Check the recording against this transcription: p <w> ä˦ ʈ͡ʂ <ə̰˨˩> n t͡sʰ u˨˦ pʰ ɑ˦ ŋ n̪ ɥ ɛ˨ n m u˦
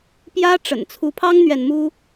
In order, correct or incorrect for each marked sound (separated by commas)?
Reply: incorrect, correct